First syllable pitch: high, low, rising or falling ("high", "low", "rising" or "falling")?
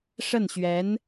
falling